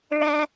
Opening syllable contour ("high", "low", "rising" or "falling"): high